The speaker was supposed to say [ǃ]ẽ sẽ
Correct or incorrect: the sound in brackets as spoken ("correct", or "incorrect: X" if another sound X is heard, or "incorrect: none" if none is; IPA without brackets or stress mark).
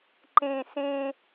correct